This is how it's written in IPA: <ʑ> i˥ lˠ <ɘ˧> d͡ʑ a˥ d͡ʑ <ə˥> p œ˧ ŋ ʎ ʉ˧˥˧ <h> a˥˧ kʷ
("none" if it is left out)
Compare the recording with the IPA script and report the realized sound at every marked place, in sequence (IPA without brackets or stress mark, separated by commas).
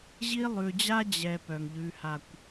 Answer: ʑ, ʉ˧, ɛ˥, h